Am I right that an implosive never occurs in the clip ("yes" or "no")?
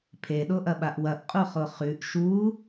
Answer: no